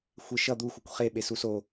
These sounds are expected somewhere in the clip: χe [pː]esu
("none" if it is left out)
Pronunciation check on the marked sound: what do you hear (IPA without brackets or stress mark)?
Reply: ɓ